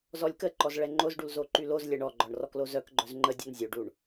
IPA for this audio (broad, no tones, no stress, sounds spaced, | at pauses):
z ɔ lʲ k ə ǃ ɔ z ɭ ɛ ŋ͡ǃ o z ɖ u l z o ǃ y l o z lʲ ɛ ɳ ɔ ɡ͡ǃ ɔ ɳ r ɔ k l o z œ k ɡ͡ǃ œ z ŋ͡ǃ ə dʲ ɔ n zʲ o ɖ u ɳ